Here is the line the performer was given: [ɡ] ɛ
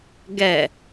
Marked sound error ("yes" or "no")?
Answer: no